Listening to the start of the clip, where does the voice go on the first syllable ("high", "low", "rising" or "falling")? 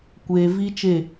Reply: low